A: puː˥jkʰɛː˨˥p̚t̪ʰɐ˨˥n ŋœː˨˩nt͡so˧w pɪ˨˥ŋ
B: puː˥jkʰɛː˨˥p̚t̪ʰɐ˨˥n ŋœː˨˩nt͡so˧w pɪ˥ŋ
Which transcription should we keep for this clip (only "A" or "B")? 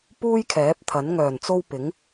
A